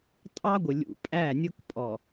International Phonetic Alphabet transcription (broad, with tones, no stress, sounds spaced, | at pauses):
tʼ ɑ˦ ɡʷ ɪ˨ lʲ ṵ˨ pʼ æ˦˨ nʲ ʊ˦ k pʼ ɔ˨